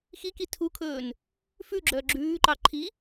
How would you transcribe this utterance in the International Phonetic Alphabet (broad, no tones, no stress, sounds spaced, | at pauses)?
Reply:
x i k i tʰ u kʰ ɵː n | f ʉ ɡ͡ǁ œː ɡ͡ǁ ʉː ǃ ɑ ǃʰ i